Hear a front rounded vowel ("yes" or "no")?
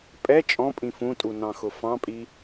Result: no